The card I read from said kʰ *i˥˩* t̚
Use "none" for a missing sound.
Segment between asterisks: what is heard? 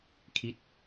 i˥˩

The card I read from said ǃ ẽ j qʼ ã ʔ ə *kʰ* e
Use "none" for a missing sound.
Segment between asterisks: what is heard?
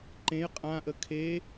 kʰ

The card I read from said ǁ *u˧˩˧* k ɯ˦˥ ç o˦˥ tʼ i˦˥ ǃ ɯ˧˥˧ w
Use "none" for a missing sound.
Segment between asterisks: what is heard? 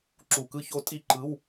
u˧˩˧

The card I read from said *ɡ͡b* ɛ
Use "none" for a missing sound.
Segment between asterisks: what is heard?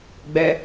ɡ͡b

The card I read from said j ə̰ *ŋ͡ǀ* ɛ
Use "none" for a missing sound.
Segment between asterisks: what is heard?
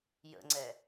ŋ͡ǀ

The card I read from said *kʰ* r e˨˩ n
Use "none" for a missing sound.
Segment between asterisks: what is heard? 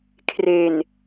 kʰ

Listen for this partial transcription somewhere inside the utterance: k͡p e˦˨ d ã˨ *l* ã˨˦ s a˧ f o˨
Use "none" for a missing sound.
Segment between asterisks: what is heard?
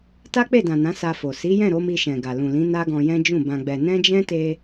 n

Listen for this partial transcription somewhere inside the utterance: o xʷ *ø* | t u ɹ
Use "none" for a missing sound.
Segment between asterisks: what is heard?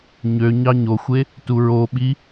e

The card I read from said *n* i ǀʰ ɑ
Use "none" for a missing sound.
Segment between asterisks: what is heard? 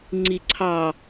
ŋ͡ǀ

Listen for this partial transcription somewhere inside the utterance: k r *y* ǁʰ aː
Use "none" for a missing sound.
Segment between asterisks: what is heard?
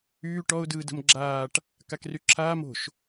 y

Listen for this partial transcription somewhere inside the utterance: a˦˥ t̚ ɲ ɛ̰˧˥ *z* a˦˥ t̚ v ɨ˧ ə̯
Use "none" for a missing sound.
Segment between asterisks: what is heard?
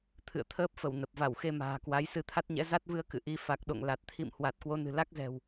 z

